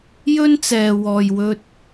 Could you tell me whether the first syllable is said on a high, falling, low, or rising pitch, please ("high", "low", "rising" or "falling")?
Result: high